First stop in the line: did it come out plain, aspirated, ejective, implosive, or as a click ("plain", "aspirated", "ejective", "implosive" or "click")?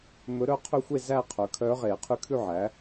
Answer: aspirated